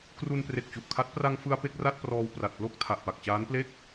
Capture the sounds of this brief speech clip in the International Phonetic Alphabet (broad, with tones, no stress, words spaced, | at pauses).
kru˧npre˨˩k̚t͡ɕu˨˩ʔkʰa˦˥t̚ pra˧ŋfɯ˧a̯ pe˥˩k̚ra˥˩t̚prɔː˧w pra˨˩t̚plo˥˩k̚ tʰa˨˩ʔpa˨˩k̚t͡ɕaː˦˥nple˥˩k̚